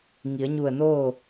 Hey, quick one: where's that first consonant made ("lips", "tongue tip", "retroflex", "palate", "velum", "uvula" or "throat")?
velum